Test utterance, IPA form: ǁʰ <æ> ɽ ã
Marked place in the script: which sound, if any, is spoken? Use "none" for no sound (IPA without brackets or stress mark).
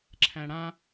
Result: æ̃